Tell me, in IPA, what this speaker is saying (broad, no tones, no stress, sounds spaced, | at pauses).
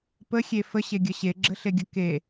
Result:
p ə xʲ e f ə ɕ e ɡʲ ʌ ɕ e ɡ͡ǁ ə ɬ e ɡʲ ʌ k e